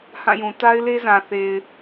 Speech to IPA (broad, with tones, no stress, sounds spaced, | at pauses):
h ã˦˨ j ũ˨ t a˦ ɪ̯ l e˦ z ã˨ θ e˨ ɪ̯